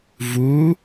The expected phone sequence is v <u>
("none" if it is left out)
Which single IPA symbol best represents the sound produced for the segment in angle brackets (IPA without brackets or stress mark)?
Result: u